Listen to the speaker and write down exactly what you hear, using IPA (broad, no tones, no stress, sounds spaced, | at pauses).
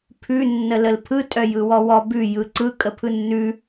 pʰ ʉ nː ə l ə l pʰ ɯ tʼ œ j ɯ w ɔ w ɔ b ʉ j ɯ ǀ ɯ kʼ ə pʰ ɯ nː ʉ